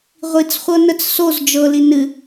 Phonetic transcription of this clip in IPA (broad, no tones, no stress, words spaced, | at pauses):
ʁʷit͡sχʷɤnət͡s soz d͡ʒɤli nɨ